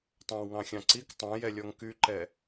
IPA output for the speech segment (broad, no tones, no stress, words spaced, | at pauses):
tˤɑ̃wŋɑ̃xʲɑ̃ǀik tˤɑ̃jɛlʲɔŋ kyǃɛ